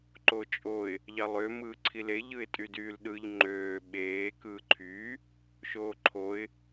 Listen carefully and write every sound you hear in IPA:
ǃ o t͡ʃʼ o ɪ̯ | ʎ ɑ lˠ ø m ɯː ǀʰ i l e ʎ ɯ ɪ̯ tʼ y d yː l ɗ ɯ ʎ ŋ͡ǃ øː ɓ eː k ɯː ǃʰ yː | ʃ oː ǃʰ o ɪ̯

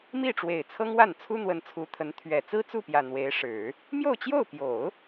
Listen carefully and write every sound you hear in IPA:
m i˥˩ ʈ͡ʂ w e˨˩ ɪ̯ t͡sʰ ɤ˥ ŋ w a˥˩ n t͡sʰ u˥ n̪ w ə˧˥ n t͡sʰ u˧˥ t̪ʰ ə˧˥ n t̪ʰ ɥ ɛ˨˩ t͡s ɹ̩˥ t͡s u˥˩ p j ä˨˩ n̪ w e˧˥ ɪ̯ ʂ ɻ̩˨˩˦ | m j o˥˧ ʊ̯ t͡ɕ j o˥˩ ʊ̯ p j o˨˩˦ ʊ̯

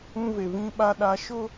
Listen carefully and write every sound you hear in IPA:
ũ˦ v e˨ v ĩ˦ ɓ a˦ ɗ a˨ ʃ ʊ˦

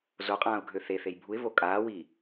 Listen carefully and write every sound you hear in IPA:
z o qʼ ãː ʊ̯ ɡʱ ø θ e θ e j bʱ u ɪ̯ v o kʼ aː w iː

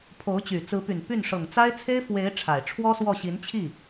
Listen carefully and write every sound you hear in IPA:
pʰ o˧˥ ʊ̯ t͡ɕ y˨˩ t͡s ɹ̩˧˥ p y˨˩ n p y˥˩ n ʂ ɤ˨˩ ŋ t͡s a˥ ɪ̯ t͡sʰ e˥ ɪ̯ f w e˧˥ ɪ̯ ʈ͡ʂʰ a˨˩ ɪ̯ ʈ͡ʂʰ w ɔ˥ s w ɔ˥˩ ɕ i˧˥ n t͡ɕʰ i˥˩

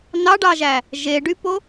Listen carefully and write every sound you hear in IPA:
n ɑ ɖ ɑ ʒ æ | ʒ e ɖ y p o

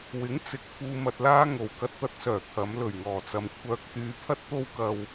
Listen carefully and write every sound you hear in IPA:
w ɪ˨˥ ŋ t͡s ɪ˨ k̚ f uː˧ m ɐ˧ t̚ l aː˥ ŋ o˨ w k ɐ˥ t̚ t̪ ɐ˥ t̚ s œː˨˩ t̪ʰ ɐ˨˧ m l ɵ˨˩ ɥ ŋ ɔː˨˩ t͡s ɐ˨ m kʷʰ œː˧ k̚ t̪ yː˧ pʰ ɐ˥ t̚ t̪ o˥ w k ɐ˧ w

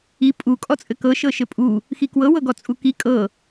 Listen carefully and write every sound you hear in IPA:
i pʼ u kʼ ɔ t͡sʼ ɘ k ɤ ʃ ɤ ʃ ɘ pʼ u | x i k w ɤ w ɤ ɡ ɔ t͡sʼ u k i kʼ ɤ

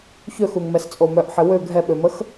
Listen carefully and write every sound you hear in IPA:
ç ø x u ŋ m ɛ s t͡sʼ o m œ ʔ ħ ɪ w ø ɡʱ ɛ ɓ ø m ə x

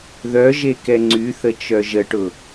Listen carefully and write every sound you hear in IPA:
ð œ ʒ e k ɛ ŋ͡ǀ y θ ə t͡ʃ œ ʒ ə ʈ ʊ

